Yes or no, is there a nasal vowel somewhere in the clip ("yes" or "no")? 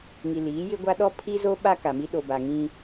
yes